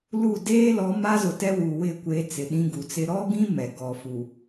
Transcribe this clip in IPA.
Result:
l u˦˨ d eː˦ l ɔ˨˦ m a˦ z ʊ˨ t ɛ˦ w uː˨ w ɪ˦˨ kʷ e˨ t͡s ɪ˨ ɗ ĩ˦ ɡ u˨ t͡s ɪ˦ ɾ ɔ˦ ɡ ĩ˦ m ɛ˨ ɡ ɔ˨ f u˨

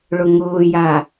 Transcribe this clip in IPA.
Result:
ɭ ʊ ŋ ʊː j a

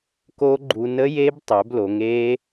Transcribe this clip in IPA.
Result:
k o˦˥ ɡ͡ǃ u˧ n ə˦˥ j e˦˥ b tˤ œ˩˧ b l o˩˧ ŋ e˦˥

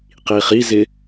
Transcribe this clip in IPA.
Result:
q iː χ i z ɪ

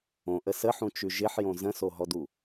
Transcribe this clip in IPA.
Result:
õ ʔ ə s ə ħ ũ t͡ʃ ʉ ʒ ɪ ħ j õ z ə̃ s o ɦ ɔ d u

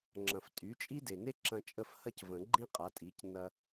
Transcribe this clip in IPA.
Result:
ŋ͡ǁ ɐ̃˩ f tʼ y˩˥ t͡ʃʼ i˥ d e˩ n e˥ ǁ ɐ̃˧ t͡ʃʼ ə˥˩ f h ɐ˥ c v ə̃˨˩˦ ɡ͡ǃ ĩ˥ qʼ a˩˥ tʼ i˩˥ c n ɐ˧

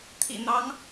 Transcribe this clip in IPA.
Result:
t̪ʰ ḭ˨˩ n̪ ɑ˧˥ ŋ

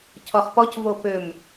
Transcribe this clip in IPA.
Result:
cʰ ɔ χ p ɔ c v o p ø m

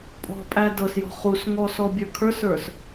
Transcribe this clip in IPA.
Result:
pʼ ɔ̤ pʼ æ d ɤ s j ɔ̤ χ u s ŋ ɔ s ɔ bʲ ə˞ kʰ ə˞ s ə˞ s

